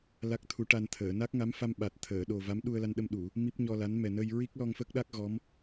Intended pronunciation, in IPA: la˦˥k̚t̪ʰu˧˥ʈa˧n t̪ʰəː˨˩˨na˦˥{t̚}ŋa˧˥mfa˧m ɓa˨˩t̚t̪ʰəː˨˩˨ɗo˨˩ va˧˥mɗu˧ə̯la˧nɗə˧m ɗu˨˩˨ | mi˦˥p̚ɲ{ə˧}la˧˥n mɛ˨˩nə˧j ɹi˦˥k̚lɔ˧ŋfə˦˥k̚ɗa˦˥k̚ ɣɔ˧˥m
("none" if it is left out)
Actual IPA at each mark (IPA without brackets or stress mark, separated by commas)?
k̚, ɔ˧